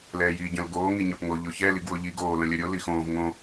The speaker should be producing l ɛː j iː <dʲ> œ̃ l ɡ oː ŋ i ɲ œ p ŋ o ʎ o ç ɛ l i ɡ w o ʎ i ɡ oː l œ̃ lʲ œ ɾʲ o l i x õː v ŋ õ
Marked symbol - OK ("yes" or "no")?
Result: no